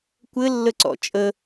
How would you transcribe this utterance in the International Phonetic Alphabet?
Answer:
kʷ ɘ lː ə ǀ ɔ̰ t͡ʃʼ ə

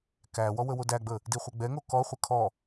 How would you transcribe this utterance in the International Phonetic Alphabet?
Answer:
k æ w ɔ w ə w o d æ ɡ͡b ə | d i χʷ ə ɡ͡b ɛ ŋ o k ɔ χʷ ə kʰ ɔ

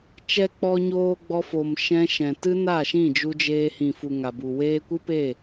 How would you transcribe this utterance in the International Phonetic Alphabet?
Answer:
t͡ʃ ɛ˨ k͡p ɔ˨ ɲ oː˨ ɡ͡b ɔ˧ f o˨ m ʃ ɛ̃˧ ʃ ɛ̃˨ t ɨ˦ n a˦˨ ʃ ĩ˦˨ d͡ʒ u˧ d͡ʒ eː˧ h ĩ˨ f u˨ ŋ a˨ b u˨ w eː˧ kʷ ɨ˦ p e˦˨

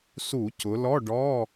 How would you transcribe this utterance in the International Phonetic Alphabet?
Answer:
s u˧˩˧ c ʊ˩˧ l ɔ˧˥˧ ɖ ɔ˧˥˧

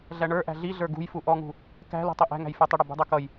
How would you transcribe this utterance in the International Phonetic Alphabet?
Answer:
ɮ æ ɳ ə˞ ʔ æ̤ ɮ i ɮ ə˞ ɡ ṳ j f u ʔ ɔ ŋ ṳ | k æ̤ l ṳ tˤ ɪ ʔ æ̤ ŋ æ̤ j f ə˞ tˤ ɪ ɽ ʌ b ṳ dˤ ə˞ k ʌ j

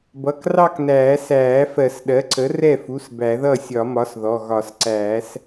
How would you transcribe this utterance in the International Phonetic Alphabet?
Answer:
b ʌ˩˧˩ k r ɑ˥˧ k n æː˨˩˦ s æː˨˩˦ f ɜ˨˩˦ s ɗ ɜ˩˥ ǀ ə˩˥ r ɛ˥˩ f u˩˧˩ s b æ˨˩˦ ð ʌ˥˩ sʲ ɒ˨˩˦ m ɒ˩˥ s ð ɔ˩˧˩ ɣ ɒ˨˩˦ s ǀ æː˨˩˦ s

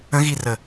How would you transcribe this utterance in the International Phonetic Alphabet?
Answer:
ə̃ ɣ i r ə

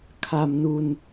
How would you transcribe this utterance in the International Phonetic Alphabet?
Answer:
kʰ a˧ m n u˧ n

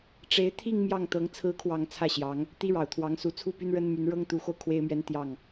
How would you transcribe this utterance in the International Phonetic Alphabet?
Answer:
ʈ͡ʂ e˧˥ ɪ̯ t̪ʰ i˥˧ ŋ m j ɑ˥˩ ŋ t̪ ɤ˧˥ ŋ t͡sʰ ɹ̩˧˥ kʰ w ɑ˨˩ ŋ t͡sʰ ä˥˩ ɕ j ɑ˧˥ ŋ | t̪ i˥ ɻ ɑ˨˩ ʊ̯ t̪ʰ w ɑ˧˥ ŋ s u˧˥ t͡sʰ u˥˩ p y˥ n ɻ ə˥ n m y˧˥ n ɻ ɤ˥ ŋ t̪ u˧˥ x o˧ ʊ̯ kʰ w e˥ ɪ̯ m ɥ ɛ˥ n t̪ j ɑ˥˩ ŋ

